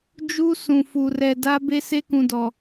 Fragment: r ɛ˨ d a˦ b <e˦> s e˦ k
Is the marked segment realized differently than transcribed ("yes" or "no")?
no